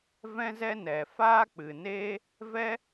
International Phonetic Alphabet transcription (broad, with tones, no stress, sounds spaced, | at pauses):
v ɛ̃˦ z ɛ˦ n ɛ˨ f aː˦ k͡p ɨ˨ n eː˦ | v ɛ˦